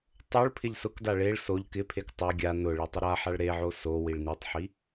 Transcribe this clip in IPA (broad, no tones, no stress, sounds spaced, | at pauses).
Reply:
tˤ o ɭ pʰ ɪ ʎ s ʊ k d a ɭ e ɭ s o ʎ k ɪ pʰ e k tˤ ɪ ɡʲ a n ʊ ɭ e tˤ ʊ ɾ a ħ a ɭ ɾ e ʕ o s o w i ɭ n i tˤ ħ i